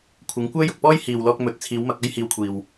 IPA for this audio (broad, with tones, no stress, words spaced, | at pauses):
kʷʰɪ˨˧ŋkʷœː˥jʊ˨k̚pɔː˥j hiː˨wlɔː˧k̚mɵ˨t̚ t͡sʰiː˨˧wmɐ˧k̚ɐ˥j hiː˧wkʷʰiː˨w